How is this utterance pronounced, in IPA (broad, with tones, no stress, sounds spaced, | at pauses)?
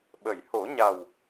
ɓ ə˨˩˨ j h o˨˩˦ ɲ a˨˩ w